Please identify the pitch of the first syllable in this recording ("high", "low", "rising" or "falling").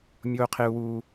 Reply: high